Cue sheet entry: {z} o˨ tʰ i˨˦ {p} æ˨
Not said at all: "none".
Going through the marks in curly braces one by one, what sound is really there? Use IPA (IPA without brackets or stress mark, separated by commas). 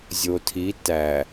zʲ, t